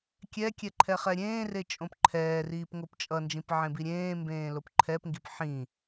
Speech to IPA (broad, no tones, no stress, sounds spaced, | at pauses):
kʲ ɛ kʲ ɛ ǃʰ ɛ χ ɛ ɾʲ ẽː r e t͡ʃʼ õ p ǃʰ ɛː r iː p ŋ o p t͡ʃʼ ʌ n d͡ʒ ĩ p ʕ ẽ b i ɾʲ ẽː m b ẽː l o p ǃʰ ɛ p ŋ ɡ i p ħ ĩ